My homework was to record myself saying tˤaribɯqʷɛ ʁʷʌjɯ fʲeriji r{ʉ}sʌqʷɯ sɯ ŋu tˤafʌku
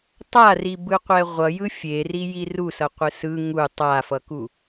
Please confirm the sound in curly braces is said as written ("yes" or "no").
no